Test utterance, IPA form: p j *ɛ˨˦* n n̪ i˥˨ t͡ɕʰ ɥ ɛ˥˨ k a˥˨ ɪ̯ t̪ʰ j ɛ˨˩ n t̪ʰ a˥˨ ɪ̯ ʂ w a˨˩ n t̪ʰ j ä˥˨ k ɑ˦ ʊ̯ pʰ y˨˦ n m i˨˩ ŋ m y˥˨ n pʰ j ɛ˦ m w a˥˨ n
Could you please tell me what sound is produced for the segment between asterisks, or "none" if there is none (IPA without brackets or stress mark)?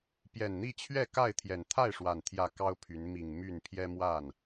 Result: ɛ˨˩